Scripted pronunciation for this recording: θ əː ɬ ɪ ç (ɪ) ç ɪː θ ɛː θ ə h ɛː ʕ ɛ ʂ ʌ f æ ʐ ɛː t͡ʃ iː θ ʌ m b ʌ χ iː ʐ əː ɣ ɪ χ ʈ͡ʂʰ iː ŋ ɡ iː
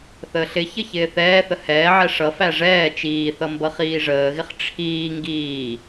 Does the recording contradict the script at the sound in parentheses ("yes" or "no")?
yes